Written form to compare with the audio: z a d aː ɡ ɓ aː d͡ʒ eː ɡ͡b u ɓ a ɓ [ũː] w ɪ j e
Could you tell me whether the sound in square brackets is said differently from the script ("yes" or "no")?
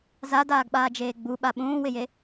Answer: no